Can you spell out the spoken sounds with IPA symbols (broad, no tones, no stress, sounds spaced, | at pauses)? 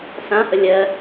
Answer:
s ã h ə lʲ ɜ